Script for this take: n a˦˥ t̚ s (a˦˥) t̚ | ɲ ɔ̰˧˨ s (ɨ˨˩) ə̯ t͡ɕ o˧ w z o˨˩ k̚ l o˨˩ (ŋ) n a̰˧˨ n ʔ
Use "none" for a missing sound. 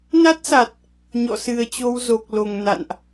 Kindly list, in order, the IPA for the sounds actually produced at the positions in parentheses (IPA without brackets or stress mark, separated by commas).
a˨˩, ɨ˨˩, ŋ